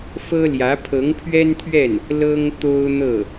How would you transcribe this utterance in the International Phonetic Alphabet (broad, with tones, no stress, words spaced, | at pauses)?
fɤ˥ljä˧˥ pʰɤ˧˥ŋpʰɥɛ˥nt̪ʰɥɛ˥˩n | lɤ˥ŋt̪o˥ʊ̯n̪ɤ˥˩